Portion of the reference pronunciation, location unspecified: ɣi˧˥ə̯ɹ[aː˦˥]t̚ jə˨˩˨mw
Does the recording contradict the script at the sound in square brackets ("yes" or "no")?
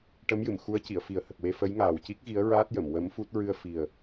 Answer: no